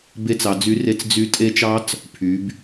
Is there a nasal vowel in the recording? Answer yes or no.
no